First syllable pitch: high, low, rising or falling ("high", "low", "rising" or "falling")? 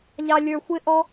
low